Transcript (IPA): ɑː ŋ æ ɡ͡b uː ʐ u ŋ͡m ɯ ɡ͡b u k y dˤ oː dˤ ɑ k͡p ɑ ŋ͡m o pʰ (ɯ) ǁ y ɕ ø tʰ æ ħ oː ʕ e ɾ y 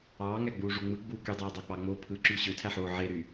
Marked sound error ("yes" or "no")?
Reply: no